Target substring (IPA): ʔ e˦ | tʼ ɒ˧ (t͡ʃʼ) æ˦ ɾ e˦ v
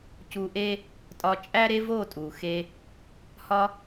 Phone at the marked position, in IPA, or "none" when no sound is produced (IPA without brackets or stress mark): t͡ʃʼ